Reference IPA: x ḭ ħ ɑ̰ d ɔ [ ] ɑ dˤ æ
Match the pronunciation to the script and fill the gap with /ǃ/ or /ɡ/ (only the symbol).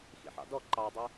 ǃ